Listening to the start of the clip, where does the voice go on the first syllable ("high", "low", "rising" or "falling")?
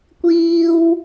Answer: high